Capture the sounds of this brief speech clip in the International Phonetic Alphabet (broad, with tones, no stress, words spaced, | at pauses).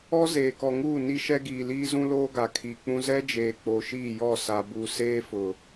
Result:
ɔ˦ zeː˨kɔ˨ŋuː˦˨ ni˦ʃɛ˦ɡiː˨liː˦ zũ˦loː˦ɡa˨ kʰiː˨k͡pũ˦ zɛ˦d͡ʒeː˨ k͡po˨ʃiː˦˨jɔ˦˨ sa˨bu˨ seː˦fʊ˨